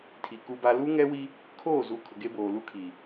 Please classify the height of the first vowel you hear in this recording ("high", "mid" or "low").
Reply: high